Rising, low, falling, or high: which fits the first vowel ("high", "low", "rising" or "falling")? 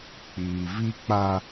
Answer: low